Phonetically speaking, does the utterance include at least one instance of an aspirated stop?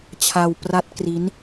yes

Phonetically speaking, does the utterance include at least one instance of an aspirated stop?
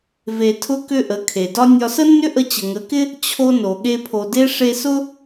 yes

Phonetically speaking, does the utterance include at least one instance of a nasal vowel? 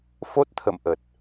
no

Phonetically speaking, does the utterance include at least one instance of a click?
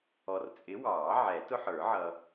no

